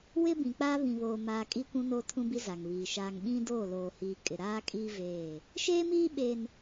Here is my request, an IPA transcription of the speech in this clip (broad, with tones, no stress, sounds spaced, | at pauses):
w ɪ˦ b ĩ˨ k͡p aː˦ β ĩ˨ β oː˨ m aː˨ kʼ iː˦ kʷ ũ˦ n oː˦ tʰ ũ˦ b i˦ z a˨ ŋ β iː˨ ʃ aː˦ ŋ ɓ ĩ˦ d oː˦˨ l oː˨ h iː˨ kʼ ɪ˨ ɾ aː˦ kʼ iː˦ v eː˦˨ | ʃ eː˦ m iː˦ ɓ e˦ n